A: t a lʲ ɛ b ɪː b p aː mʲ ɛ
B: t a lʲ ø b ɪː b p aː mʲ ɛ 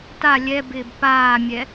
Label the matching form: A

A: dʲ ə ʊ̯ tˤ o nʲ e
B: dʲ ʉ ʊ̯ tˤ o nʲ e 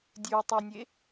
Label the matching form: B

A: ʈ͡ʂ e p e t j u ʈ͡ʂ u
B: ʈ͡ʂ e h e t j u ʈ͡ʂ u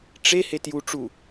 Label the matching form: B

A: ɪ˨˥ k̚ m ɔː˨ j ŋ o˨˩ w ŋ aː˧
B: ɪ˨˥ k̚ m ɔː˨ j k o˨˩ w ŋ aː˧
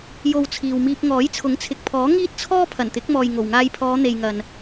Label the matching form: A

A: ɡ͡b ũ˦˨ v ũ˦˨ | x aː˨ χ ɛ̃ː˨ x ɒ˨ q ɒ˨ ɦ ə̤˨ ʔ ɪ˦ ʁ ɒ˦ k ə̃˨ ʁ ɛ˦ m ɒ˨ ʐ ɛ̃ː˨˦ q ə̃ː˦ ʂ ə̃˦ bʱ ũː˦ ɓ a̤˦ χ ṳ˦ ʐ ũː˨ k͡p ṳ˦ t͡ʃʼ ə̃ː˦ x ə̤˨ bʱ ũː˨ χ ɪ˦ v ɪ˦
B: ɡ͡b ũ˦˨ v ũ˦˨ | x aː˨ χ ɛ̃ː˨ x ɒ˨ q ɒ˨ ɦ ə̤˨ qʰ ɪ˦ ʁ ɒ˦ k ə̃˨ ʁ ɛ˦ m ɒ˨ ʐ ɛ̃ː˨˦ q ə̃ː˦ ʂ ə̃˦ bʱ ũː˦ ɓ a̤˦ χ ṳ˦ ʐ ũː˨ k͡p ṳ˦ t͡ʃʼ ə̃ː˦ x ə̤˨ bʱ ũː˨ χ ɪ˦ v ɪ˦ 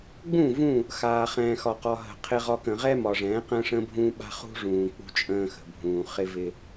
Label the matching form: B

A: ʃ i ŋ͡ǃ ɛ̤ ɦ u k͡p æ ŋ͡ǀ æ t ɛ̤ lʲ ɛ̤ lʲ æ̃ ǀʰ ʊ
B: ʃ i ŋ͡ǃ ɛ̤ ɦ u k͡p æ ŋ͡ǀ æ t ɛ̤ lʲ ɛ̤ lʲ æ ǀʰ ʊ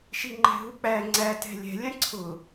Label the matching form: A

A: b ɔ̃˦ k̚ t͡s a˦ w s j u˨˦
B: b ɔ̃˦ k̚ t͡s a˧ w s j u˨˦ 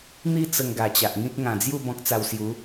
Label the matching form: B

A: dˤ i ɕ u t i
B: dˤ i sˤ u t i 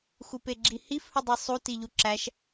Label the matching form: B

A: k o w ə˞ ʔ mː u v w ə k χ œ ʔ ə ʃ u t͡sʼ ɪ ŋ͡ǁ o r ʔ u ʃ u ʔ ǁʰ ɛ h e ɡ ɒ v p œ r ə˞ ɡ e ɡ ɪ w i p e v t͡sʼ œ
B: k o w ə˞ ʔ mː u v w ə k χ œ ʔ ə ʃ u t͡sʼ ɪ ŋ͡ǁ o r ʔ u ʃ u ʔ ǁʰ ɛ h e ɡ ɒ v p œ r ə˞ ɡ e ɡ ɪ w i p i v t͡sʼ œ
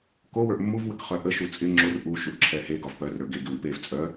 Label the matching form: A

